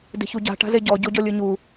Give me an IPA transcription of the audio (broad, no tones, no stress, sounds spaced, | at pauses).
d e̤ ç u ɟ a̤ ʈ a̤ z e ɟ ɔ ɟ o ɟ ɔ lʲ ɯ ɲ u